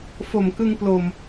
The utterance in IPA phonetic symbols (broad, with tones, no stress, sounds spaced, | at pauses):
f o˨˩ m k ɯ˧ ŋ p l o˨˩ m